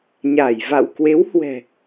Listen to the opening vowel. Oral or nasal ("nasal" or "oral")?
oral